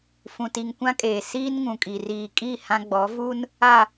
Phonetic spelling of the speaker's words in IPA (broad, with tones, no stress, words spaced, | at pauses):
fũ˨ti˨ŋkʷã˦kʼeː˨ siː˦nŋũ˨kʼi˨ riː˨kʼi˦˨ hã˦ɡ͡bɔ˨˦vu˦n | a˨